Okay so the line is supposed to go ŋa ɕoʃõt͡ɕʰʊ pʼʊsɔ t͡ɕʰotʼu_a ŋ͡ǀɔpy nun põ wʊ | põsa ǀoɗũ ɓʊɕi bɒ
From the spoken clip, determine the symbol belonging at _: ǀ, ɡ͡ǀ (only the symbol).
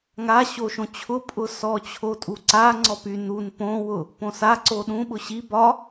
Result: ǀ